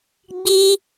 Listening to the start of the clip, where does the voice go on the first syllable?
high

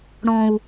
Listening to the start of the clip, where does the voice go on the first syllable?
low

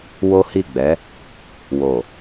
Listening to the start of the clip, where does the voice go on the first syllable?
high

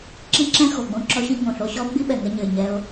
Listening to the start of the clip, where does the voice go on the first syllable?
high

